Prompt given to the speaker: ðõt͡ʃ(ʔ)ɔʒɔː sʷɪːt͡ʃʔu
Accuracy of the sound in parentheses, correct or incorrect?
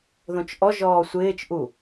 correct